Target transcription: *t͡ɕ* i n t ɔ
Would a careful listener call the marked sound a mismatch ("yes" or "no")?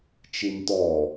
yes